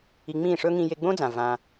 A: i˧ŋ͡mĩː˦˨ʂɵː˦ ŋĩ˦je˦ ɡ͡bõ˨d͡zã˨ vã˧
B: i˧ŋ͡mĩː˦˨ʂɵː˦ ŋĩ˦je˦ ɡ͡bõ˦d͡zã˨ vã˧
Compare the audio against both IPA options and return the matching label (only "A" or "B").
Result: B